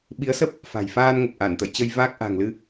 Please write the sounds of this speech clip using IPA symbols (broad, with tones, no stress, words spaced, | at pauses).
ɓi˨˦ə̯sə˦˥p̚ | fa̤˨˩jfaː˧nŋə˨˩p̚ ʔa˧˩nt̪ə̰˧˨jt͡ɕə˧j vaː˦˥k̚ʔa̤˨˩ŋlɨ˧